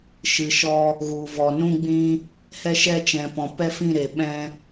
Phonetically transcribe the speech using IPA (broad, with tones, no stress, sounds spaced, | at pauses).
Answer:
ʃ ɨ˨ ʃ ɔ˧ | ɣ u˨ v ɔ˨ n ũ˦ ɡ͡b ĩ˦ | h ɛ˧ ʃ ɛ˧ t͡ʃ ɛ̃˨ p ɔ̃˨ p ɛ˦ f ĩ˦˨ ɾ e˨ ɓ ɛ̃˧